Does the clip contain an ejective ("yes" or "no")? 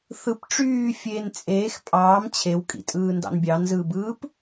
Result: yes